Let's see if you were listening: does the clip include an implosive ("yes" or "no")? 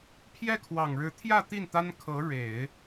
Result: no